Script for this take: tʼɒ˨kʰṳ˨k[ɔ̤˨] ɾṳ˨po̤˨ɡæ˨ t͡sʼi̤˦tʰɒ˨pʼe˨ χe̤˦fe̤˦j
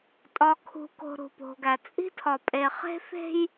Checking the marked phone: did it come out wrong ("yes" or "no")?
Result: yes